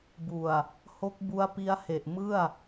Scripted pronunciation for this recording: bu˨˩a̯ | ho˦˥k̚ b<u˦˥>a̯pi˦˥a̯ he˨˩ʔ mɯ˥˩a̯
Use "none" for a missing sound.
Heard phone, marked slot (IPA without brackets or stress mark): u˦˥